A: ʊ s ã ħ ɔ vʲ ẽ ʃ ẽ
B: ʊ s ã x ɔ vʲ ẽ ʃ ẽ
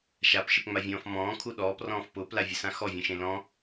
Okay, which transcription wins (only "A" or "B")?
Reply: B